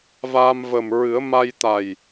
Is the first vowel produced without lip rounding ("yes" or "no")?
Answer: yes